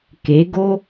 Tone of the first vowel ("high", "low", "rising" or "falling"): rising